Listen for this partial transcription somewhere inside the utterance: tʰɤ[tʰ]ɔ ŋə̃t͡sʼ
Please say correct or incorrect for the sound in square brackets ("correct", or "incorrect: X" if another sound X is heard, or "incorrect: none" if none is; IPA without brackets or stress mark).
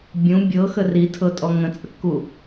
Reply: incorrect: tʼ